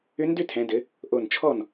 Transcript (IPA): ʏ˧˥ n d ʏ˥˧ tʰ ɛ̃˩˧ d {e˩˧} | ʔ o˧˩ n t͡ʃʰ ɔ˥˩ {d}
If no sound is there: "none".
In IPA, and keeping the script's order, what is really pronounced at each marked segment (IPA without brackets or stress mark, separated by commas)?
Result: ɘ˩˧, n